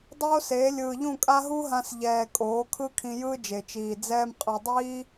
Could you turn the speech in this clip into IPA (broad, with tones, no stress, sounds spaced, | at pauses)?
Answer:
dˤ oː˦ s eː˨˦ lʲ ɯː˨ ʎ ũ˦˨ kʼ a˦ ɦ u˦ ɦ ã˧ s ʎ ɛː˨ kʼ oː˨˦ kʰ ɯ˦ kʰ ĩ˧ j ɯː˦ d͡ʒ e˨ t͡ʃ iː˨ d͡z ɛː˦ m qʼ ɯ˧ dˤ iː˦